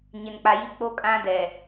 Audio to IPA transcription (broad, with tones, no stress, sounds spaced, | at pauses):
ɲ ɪ˨ n k͡p a˨ j i˦ k͡p o˦ kʼ ã˦ d ɛ˨